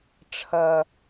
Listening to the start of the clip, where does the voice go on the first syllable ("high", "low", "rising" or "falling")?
low